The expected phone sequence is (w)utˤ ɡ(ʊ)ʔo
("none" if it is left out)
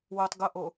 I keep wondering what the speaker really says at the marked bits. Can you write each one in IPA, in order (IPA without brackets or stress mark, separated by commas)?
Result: w, ʊ